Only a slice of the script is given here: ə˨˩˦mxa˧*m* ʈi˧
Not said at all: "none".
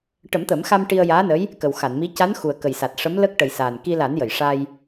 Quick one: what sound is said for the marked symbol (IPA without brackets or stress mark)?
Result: m